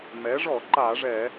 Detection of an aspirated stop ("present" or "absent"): absent